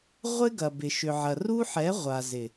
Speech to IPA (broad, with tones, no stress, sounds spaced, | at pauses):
ʁʷ ɪ˦ ɡ ɐ˨ b ɪ˨ ʃ ʏ˨ ʕ ɐ˨ r u˦ ħ ɛ˨˦ ʁʷ a˨ z ɪ˨